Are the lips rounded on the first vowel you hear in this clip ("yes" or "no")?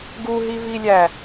yes